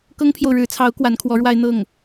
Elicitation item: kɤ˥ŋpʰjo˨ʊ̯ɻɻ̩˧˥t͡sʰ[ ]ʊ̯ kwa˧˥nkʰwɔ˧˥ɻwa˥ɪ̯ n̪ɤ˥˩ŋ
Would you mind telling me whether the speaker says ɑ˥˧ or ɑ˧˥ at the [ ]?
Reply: ɑ˧˥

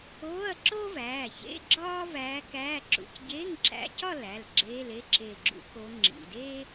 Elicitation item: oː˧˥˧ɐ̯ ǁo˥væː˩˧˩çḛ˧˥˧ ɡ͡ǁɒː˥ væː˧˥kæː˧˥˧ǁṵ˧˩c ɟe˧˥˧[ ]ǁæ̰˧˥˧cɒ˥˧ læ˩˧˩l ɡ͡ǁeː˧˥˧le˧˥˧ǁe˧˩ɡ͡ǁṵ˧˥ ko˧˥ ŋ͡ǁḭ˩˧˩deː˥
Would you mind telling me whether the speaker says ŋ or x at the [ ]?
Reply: ŋ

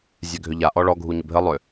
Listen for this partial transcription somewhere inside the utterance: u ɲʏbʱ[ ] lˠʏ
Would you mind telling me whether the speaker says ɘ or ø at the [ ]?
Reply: ɘ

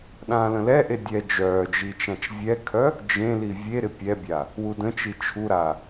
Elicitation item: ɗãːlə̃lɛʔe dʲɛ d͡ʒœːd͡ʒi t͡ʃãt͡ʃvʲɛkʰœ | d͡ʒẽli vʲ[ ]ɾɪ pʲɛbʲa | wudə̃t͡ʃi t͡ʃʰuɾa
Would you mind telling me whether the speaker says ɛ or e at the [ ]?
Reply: e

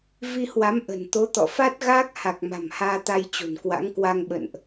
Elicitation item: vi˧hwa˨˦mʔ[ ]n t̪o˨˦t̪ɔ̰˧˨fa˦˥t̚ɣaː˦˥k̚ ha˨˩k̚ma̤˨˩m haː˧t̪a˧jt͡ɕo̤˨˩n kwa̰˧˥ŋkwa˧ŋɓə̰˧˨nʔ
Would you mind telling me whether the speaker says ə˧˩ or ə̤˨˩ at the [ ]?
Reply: ə̤˨˩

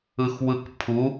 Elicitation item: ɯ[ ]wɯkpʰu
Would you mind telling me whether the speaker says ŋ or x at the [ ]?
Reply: x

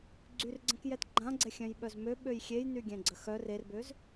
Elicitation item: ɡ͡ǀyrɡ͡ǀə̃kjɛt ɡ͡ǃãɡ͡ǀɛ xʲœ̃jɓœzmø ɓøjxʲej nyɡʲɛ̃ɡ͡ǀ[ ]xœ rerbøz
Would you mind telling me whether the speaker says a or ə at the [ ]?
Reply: ə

